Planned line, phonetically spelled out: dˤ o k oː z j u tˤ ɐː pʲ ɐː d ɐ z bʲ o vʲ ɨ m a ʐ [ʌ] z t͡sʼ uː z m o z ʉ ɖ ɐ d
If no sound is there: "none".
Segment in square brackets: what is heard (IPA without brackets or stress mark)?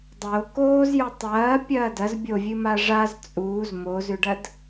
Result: a